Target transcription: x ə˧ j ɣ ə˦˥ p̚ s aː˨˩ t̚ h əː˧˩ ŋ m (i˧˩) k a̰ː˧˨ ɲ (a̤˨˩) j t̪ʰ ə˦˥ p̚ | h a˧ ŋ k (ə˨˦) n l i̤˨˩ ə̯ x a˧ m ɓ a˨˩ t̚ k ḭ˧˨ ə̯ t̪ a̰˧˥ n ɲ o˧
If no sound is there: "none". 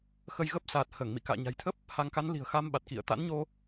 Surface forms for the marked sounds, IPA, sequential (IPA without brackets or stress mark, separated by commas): ḭ˧˨, a̤˨˩, a˨˦